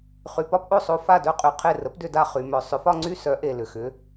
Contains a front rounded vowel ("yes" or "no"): yes